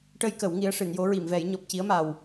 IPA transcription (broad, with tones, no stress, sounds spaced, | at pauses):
ʈ ə˧ j k ə˨˩˦ w ŋ i˧˥ ə̯ ʂ ɨ˨˩˨ n j o˧˥ ɹ i˨˩˨ m v ɛ˨˩˦ j ɲ ɔ˨˩ p̚ c i˧˥ ə̯ m a˨˩ w